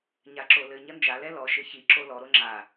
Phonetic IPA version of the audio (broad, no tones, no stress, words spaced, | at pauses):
ɲaǁolɘ ɲɐnd͡ʒa lɛlɔ ʃɘçi ǁolɔ ɾoŋ͡ǁa